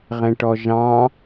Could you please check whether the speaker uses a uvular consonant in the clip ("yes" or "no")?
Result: yes